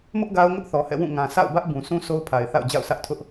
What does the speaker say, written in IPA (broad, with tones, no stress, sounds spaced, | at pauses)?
m ʊ˦ ʔ ɡ a˦ ʊ̯ ŋ ʊ˦ ʔ θ ɔ˨ h ɛ̰˦˨ w ũ˦˨ ŋ ã˨ s a̰˦˨ ʊ̯ b ä˦ ʔ b ũ˨ s ũ˦ s o˦ ʊ̯ pʰ a˨ ɪ̯ θ a̰˦˨ ʊ̯ d͡ʑ a̰˦˨ ʊ̯ s ä˦ ʔ tʰ ʊ˦ ʔ